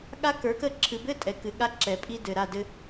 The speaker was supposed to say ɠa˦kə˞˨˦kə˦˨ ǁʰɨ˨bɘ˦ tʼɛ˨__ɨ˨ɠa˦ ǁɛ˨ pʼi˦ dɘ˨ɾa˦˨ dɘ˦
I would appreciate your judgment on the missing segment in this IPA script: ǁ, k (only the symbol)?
k